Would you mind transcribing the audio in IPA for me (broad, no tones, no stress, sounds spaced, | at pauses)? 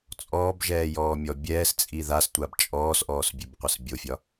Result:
t͡sʼ ɔː b ʒ ɛː j ɔː mʲ ɔ bʲ ɛː s t͡sʼ i ð a s tʷ a b t͡ʃʼ ɔː s ʔ ɔː s bʲ ø b qʷ ə s bʲ o fʲ ɒ